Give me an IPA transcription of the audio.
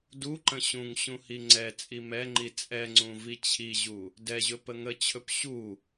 d u ǃ ə̃ ɕ ũ ŋ ɕ ũ h i ŋ͡ǀ ɛ t͡sʼ i m ɛ ŋ͡ǃ i t͡sʼ ɛ ŋ͡ǀ ũ v i t͡ɕʰ i ʑ u | d ɛ ʑ ɵ p ə ŋ ə t͡ɕʰ ɵ p ɕ u

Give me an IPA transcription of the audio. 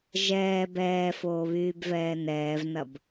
ʒ ɛː b ɛː f oː β yː b v ɛː n ɛː v n ɐ b

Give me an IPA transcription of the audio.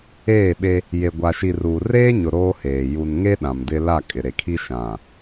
eː˦˨ ɓ e˦ | j e˨ ɡʷ a˨ ʃ i˨ r uː˨ r eː˦ ɲ ʊ˨ ɾ oː˦ h eː˨ j u˨ n ŋ e˦ ɗ ã˨ m d ɪ˦ l a˦˨ kʼ ɪ˨ ɾ e˨ kʰ i˦ ʃ ã˨

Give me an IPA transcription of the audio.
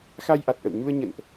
x a˧ j ʔ a˨˩ t̚ ʔ ə̰˧˨ w ɲ u˧ ə̯ ɲ ə̰˧˨ n ʔ

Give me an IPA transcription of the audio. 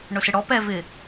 ɳ ʊ s ɪ ɽ ɔ p ɛ v ɪ

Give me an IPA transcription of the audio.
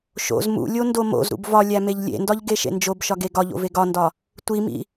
ʃ o̰ z m ṵ lʲ o n d o m o̰ z ɾ ṵ b v ɒ lʲ æ m e ʎ lʲ ḛ n d ɒ ʎ ɡ e ʃ ḛ n d͡ʒ o b ʃ ɒ ɡ e ɡ ɒ ʎ o̰ v e ɡ ɒ n d ɒ | tʷ i m ḭ

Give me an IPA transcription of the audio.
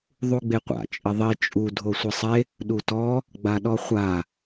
ðˤ u ɡ͡b e qʷ a̰ t͡ʃʼ ɪ ðˤ i t͡ʃʼ u dʱ o sʷ ɪ sˤ e | ɗ u t ɔ | ɡ͡b a ɗ ɔ χʷ a

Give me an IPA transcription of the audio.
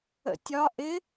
ə̰ tʲ ɒ ʔ ɪ

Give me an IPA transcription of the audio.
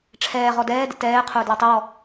ʈ͡ʂʰ ɛː ʁ ɔ d ɛː d ə̰ t ɛː qʰ ʊː d l ɔ tˤ ʊ w ɔ

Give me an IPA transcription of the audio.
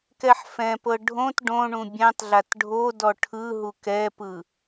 k ɛ ħ f ɛ̃ p ɤ ɖʱ õ t ɖ õ ɳ ũ bʲ ɛ̃ tˤ ɮ a t ɖʱ o d ɔ ʈʰ ɯ ɦ u k ɛ p ɯ

